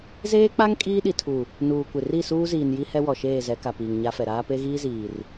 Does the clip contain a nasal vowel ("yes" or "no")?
no